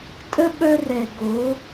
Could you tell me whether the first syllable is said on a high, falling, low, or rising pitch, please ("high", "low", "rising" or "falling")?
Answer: high